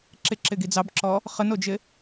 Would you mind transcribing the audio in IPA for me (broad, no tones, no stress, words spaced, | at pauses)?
ǁɪǁɪɡi d͡zɑbǁɔ | χənod͡ʒɪ